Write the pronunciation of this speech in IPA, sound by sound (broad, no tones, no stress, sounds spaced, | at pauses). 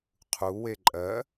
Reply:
qʰ u w e ǃʼ ɜ